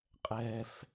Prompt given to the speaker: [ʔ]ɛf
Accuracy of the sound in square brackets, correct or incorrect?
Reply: incorrect